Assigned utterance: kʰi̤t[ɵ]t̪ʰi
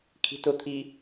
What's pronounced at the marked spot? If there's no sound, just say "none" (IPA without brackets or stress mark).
ʊ